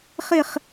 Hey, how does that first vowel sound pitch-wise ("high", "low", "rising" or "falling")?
falling